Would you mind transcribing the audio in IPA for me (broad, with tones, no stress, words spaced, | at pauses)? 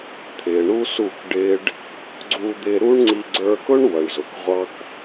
t̪ʰɪː˨ɳu˦su˦˨k ɖɪː˦ɖ | ɡ͡ǀu˧d̪ɪ˧ ɾu˦ɳŋ͡ǀi˧ ɡ͡ǀə˞˧kʊ˦ɳ wʌ˨ɳzʊ˨k ʁʷɑ˦k